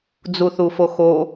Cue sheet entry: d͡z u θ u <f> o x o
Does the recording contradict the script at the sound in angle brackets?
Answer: no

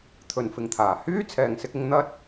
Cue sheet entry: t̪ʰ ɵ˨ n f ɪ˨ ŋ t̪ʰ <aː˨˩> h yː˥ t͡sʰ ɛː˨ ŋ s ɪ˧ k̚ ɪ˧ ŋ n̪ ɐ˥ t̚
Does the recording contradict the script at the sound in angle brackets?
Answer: no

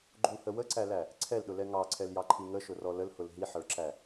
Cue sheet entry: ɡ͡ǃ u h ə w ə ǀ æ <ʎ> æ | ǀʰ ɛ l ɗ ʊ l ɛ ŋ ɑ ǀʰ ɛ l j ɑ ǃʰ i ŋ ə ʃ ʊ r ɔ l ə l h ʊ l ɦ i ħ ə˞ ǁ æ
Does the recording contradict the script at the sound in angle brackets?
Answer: yes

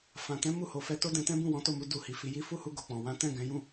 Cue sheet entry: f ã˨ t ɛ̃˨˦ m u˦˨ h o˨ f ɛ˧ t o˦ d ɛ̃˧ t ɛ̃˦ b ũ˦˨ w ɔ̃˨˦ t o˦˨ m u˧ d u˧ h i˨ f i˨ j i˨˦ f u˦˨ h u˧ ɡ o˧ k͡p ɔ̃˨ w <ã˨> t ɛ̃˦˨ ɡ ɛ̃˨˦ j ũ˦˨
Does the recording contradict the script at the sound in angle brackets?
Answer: yes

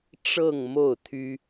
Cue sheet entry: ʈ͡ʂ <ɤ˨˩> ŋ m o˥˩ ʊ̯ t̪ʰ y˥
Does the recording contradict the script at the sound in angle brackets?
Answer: yes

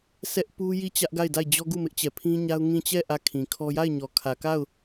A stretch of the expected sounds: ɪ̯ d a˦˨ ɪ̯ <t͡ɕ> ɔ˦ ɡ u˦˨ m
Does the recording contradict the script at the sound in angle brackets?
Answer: yes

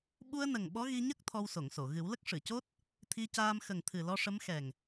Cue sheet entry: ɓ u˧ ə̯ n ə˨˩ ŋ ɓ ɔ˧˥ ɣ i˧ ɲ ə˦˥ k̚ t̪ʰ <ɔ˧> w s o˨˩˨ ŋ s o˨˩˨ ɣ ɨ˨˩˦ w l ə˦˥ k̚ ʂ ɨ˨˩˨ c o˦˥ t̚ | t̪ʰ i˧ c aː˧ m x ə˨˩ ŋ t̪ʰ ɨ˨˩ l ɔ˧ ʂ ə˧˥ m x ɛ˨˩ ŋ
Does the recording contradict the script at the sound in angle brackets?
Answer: no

